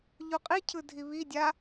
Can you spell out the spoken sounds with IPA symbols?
ʎ u qʼ i cʰ ɯ dʱ i β i dʲ a

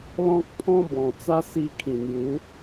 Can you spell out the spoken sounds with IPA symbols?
l ɔ̃˦ k̚ pʰ ɔ̃˦ b ɔ̃˨˩ t͡s a˦ s i˧ kʰ ĩ˨˩ n̪ j u˨˦

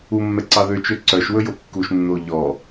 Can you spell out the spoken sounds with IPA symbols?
u mː ɛ ǀ ɑ ð ø t͡ʃ ø ǀ œ ʃ w ɵ j o kː u ʃ nː o ʎ ɔ

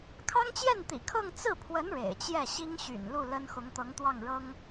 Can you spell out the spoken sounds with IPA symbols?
kʰ ɑ˥ ŋ t͡ɕ j ɛ˥˩ n t̪ ḭ˨˩ kʰ ɤ˥˧ ŋ t͡s ɹ̩˥˩ pʰ w ə˧˥ n ɻ ḛ˨˩ ɪ̯ t͡ɕ j ɛ˥˩ ɕ i˥ ŋ ɕ y̰˨˩ n l u˥˩ l ə˥ n x ʊ˧˥ ŋ t̪ ɤ˧˥ ŋ t̪ w ɑ˥˩ ŋ ɻ ɤ˥ ŋ

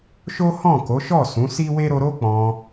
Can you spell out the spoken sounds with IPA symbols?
ʃ o˦ h ɔ̃˦˨ k o˨˦ ʃ ɔ˦˨ s ũ˨˦ s i˦ w e˦ ɾ o˧ ɾ o˦ k͡p ɔ̃˧

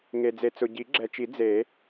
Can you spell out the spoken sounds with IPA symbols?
ŋ e˨ d͡z e˨ t͡s ʊ˨ ɟ i˨˩˦ ɡ͡ǁ ɛ˨ t͡ʃ i˨˩˦ d͡z e˨˩˦

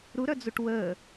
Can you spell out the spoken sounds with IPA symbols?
ɾ u ɾ œ d͡z u ʈ w əː

